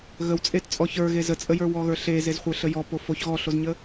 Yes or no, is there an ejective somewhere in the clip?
yes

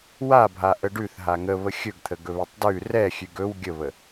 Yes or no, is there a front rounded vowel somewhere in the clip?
no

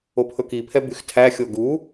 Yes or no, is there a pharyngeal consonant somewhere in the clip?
no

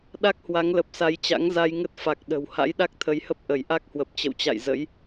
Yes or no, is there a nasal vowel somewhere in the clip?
no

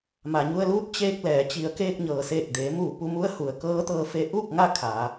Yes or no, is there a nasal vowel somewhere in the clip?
no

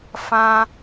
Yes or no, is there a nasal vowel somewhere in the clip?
yes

